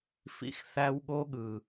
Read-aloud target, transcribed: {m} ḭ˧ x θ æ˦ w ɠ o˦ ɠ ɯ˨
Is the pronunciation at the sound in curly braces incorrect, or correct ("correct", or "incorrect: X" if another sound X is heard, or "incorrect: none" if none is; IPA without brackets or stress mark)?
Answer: incorrect: f